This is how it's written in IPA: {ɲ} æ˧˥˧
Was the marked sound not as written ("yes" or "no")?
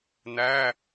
yes